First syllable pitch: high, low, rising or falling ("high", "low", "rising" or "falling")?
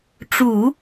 low